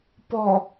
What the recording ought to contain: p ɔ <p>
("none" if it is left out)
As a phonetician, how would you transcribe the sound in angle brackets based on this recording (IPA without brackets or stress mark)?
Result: none